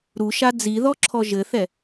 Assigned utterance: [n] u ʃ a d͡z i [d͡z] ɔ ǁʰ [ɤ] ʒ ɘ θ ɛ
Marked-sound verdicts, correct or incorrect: incorrect: ɾ, incorrect: ð, incorrect: ɔ

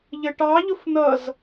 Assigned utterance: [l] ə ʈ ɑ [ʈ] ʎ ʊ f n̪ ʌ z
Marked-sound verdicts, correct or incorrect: incorrect: ʎ, incorrect: none

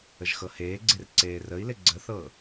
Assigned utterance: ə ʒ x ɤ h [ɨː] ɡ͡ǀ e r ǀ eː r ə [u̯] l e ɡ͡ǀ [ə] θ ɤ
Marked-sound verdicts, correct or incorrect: incorrect: eː, incorrect: i̯, correct

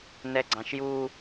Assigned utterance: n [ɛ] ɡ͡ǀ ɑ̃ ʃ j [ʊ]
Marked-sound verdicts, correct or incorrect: correct, incorrect: u

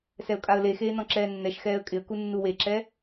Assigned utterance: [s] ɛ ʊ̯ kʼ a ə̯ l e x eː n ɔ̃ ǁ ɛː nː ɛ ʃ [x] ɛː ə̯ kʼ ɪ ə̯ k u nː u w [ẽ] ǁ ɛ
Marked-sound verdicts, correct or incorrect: correct, correct, incorrect: e

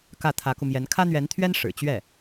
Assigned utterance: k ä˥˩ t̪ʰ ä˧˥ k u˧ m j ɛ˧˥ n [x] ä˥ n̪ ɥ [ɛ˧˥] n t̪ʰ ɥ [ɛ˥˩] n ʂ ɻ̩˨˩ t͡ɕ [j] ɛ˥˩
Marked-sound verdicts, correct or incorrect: incorrect: kʰ, correct, incorrect: ɛ˥, incorrect: ɥ

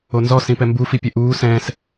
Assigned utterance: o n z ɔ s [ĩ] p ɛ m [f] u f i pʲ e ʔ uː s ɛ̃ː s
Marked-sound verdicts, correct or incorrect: correct, incorrect: b

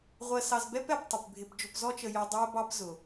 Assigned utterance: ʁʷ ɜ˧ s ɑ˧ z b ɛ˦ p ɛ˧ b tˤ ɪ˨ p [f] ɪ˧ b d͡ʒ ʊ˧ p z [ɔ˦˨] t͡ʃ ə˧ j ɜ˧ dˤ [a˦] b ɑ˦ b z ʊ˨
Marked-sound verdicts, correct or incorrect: incorrect: bʱ, incorrect: ɔ˦, incorrect: æ˦

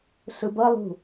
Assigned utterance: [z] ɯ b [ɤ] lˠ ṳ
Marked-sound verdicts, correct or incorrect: incorrect: ɬ, correct

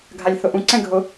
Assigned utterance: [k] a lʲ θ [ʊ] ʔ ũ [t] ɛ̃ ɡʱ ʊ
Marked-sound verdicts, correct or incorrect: incorrect: ɡʱ, correct, incorrect: ǀ

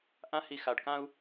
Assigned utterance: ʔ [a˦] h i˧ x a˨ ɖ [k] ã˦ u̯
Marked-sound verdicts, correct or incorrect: incorrect: ã˦, correct

